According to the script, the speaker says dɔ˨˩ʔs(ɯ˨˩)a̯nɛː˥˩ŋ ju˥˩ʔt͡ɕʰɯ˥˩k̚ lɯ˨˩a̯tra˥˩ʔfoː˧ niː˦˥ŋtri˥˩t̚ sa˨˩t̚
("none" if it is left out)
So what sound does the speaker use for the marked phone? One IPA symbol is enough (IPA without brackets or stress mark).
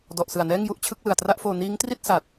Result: ɯ˨˩